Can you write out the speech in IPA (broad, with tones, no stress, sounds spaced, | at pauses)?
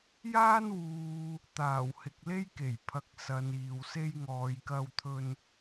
j aː˥ n w uː˨ | t̪ aː˨˩ w h ɪ˨ k̚ l e˥ j k e˨˩ j pʰ ɐ˨ k̚ s ɐ˨ n iː˨ w s e˥ j ŋ ɔː˨˧ j k ɐ˧ w t̪ʰ ɵ˧ n